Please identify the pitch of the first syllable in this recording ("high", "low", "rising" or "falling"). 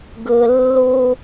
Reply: low